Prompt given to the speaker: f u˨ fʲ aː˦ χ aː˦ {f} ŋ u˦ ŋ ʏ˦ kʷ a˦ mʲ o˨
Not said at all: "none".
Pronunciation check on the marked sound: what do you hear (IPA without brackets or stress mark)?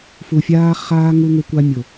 none